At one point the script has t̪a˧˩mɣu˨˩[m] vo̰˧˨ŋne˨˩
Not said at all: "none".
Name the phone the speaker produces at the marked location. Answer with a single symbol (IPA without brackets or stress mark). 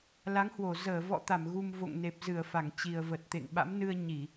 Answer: m